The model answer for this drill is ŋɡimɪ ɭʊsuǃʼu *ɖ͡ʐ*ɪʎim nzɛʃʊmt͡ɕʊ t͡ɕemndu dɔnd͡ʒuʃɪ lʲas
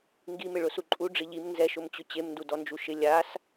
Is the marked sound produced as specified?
yes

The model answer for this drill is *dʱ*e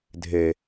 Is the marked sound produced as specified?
yes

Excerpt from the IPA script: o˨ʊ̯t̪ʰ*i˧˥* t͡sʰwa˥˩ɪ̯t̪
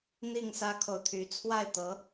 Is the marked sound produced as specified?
no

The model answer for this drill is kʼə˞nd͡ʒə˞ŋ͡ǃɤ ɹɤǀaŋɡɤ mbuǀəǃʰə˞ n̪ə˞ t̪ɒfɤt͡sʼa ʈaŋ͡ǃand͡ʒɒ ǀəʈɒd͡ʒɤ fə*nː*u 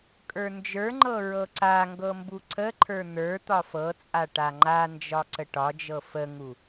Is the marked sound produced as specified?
no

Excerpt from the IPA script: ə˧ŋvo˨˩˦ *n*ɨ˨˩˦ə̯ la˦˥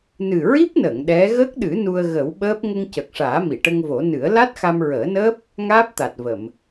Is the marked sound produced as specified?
yes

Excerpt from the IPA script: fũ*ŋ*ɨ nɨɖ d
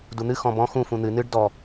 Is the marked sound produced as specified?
no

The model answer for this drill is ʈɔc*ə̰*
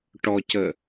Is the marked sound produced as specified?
no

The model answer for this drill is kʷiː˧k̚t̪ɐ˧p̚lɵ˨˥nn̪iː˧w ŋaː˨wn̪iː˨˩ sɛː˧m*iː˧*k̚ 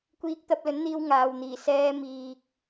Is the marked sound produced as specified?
no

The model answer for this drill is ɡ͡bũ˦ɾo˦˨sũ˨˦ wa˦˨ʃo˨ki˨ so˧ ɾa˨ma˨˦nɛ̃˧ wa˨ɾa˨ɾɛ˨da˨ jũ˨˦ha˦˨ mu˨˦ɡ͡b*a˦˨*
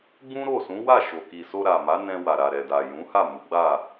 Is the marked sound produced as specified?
yes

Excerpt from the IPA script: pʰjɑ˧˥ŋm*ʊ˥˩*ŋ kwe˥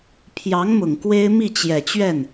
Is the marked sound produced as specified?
no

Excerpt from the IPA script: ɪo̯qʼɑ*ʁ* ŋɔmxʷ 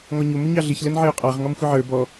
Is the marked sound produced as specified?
yes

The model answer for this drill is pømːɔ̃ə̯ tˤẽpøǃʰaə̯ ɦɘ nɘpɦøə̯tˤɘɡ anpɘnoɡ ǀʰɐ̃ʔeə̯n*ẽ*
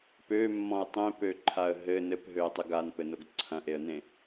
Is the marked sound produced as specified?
yes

